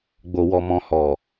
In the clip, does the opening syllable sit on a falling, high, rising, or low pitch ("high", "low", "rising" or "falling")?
low